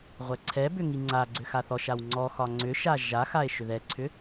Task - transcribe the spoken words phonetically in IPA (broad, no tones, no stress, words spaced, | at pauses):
ʁʷɛǀʰɛbʏ ŋiŋ͡ǀaɡ͡ǀʏ xaθɔʃaw ŋ͡ǀɔxɒ ŋ͡ǀʏʃa ʒaxae̯ ʃʏðɛǀʰʏ